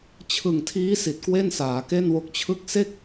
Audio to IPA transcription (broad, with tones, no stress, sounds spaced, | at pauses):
t͡ɕʰ ɯ˨˩ ŋ tʰ iː˦˥ s i˨˩ t̚ k w e˥˩ n s aː˩˦ k e˥˩ n w o˦˥ k̚ t͡ɕʰ ɯ˥˩ k̚ s e˥˩ k̚